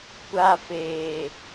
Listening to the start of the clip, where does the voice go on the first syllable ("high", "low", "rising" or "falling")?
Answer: high